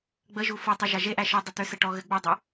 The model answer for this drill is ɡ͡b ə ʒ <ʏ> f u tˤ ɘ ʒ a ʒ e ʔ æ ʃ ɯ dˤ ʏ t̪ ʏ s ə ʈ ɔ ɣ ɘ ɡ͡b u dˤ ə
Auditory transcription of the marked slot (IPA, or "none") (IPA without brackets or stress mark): u